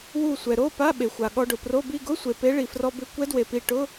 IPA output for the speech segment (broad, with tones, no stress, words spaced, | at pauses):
wu˧˩sʷɛ˩ɾo˧˥˧ pa˧˥˧ɓe˩xʷa˩ ɠɔ˧ɖʊ˩pro˧˥˧bi˥˧ ɡʊ˧˥˧sʷe˩ pe˧˥ɭi˩frɔ˧bɪ˧˥ kʷɛ˧˥dwe˩pi˧˩ ʈʊ˧˥˧